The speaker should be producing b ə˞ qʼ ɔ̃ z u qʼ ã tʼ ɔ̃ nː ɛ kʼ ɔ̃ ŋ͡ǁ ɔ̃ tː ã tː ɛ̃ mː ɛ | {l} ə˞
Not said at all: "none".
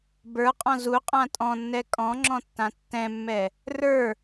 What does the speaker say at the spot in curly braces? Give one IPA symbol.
r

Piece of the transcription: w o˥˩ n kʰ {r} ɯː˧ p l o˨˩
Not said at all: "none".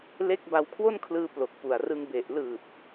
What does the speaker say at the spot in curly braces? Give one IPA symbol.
l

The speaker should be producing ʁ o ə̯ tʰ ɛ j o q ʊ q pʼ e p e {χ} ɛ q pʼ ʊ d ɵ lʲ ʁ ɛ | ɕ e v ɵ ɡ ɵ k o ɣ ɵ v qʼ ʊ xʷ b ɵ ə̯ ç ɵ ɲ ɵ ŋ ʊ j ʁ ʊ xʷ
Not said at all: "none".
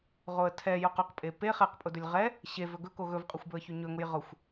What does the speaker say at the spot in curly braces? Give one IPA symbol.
χ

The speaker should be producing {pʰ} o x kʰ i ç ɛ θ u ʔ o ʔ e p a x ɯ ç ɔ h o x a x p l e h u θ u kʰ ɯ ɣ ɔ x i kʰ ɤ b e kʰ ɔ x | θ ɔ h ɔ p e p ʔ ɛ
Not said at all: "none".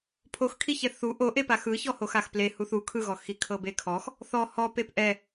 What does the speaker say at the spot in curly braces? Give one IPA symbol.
pʰ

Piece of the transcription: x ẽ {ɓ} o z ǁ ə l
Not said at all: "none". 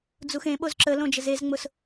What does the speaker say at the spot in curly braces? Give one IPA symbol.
ɓ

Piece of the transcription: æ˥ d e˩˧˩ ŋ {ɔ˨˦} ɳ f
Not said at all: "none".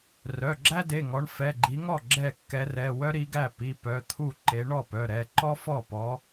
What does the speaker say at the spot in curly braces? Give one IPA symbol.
ɔ˨˦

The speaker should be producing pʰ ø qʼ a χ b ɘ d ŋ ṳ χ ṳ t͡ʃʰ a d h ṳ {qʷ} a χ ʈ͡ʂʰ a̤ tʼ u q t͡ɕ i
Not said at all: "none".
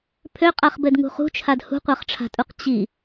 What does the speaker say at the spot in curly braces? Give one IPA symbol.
qʷ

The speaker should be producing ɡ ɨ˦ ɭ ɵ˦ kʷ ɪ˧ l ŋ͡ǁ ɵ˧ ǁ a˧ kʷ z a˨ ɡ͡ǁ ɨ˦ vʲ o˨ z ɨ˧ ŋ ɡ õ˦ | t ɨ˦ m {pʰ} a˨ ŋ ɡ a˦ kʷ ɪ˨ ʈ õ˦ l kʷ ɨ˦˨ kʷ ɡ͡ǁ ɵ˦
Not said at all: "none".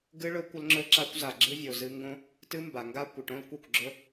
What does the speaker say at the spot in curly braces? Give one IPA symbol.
b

